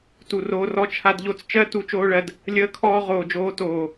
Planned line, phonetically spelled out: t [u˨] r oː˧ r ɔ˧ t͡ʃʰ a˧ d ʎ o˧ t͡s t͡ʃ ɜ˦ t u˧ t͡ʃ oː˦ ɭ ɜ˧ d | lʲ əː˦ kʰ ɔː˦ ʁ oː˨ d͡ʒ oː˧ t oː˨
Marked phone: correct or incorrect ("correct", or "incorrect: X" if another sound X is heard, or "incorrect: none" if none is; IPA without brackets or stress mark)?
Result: correct